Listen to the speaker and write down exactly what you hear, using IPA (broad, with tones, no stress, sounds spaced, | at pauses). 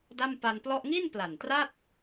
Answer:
d a˥˩ m p a˧ n p l ɔ˥˩ ʔ ŋ i˥˩ n p l a˨˩ n t r a˥˩ t̚